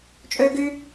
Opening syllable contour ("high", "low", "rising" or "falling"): high